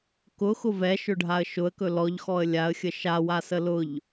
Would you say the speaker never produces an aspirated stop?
yes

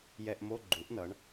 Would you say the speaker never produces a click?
no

